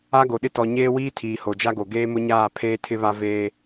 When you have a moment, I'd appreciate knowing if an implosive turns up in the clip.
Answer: yes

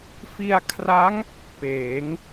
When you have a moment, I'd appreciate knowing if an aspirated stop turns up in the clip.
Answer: yes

